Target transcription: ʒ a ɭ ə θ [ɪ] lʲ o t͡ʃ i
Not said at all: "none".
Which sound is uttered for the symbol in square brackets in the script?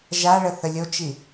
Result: ə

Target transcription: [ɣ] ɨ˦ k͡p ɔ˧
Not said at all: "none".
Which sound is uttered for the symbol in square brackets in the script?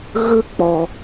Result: ɣ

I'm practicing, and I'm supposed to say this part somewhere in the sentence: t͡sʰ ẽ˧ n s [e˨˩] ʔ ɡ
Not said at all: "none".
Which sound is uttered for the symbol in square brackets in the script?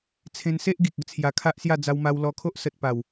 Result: e˦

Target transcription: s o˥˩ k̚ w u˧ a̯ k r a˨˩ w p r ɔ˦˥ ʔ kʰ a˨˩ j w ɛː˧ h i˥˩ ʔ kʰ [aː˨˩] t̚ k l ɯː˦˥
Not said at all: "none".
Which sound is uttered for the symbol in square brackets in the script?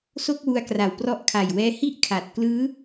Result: a˨˩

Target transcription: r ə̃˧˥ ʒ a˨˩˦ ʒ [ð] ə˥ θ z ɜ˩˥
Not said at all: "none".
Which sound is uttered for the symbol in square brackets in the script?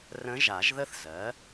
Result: ð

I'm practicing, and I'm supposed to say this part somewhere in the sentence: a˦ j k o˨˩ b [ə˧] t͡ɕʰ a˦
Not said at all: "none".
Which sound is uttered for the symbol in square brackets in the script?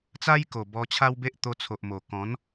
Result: ɔ˧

